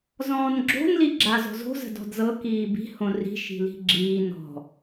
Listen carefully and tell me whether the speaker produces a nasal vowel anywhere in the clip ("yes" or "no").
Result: yes